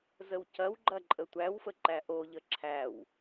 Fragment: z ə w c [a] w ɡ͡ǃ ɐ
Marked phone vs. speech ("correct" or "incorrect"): incorrect